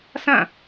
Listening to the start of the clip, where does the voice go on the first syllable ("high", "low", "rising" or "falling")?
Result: falling